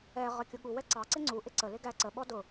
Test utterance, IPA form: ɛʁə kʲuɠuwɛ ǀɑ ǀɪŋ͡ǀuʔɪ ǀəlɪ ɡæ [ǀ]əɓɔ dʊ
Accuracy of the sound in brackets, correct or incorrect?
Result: correct